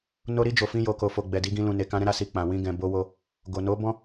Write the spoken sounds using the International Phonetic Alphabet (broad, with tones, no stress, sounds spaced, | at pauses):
n o˧ ɾ i˧ d͡ʒ o˨ f ĩ˧ j o˨ k o˨ f o˨ ɡ͡b ɛ˨ d i˨˦ ɡ ĩ˧ l ũ˨ n e˨ k ã˧ ɾ ɛ̃˦ ɾ a˦˨ s i˧ k͡p ã˨ w ĩ˧ ɡ ɛ̃˨ b o˧ w o˧ | ɡ o˨ n o˨˦ b ɔ̃˦